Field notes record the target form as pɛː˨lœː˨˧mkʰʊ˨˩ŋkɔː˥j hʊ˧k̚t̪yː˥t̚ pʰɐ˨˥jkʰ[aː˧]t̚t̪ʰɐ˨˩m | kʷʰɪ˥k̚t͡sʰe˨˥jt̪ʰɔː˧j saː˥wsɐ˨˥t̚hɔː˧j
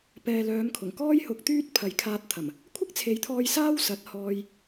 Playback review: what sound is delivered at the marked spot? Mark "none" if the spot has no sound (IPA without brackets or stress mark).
aː˧